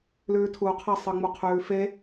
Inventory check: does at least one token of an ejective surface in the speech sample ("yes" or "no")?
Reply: no